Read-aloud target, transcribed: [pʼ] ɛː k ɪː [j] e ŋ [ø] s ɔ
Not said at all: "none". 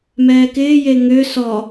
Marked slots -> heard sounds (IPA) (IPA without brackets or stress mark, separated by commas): m, j, ø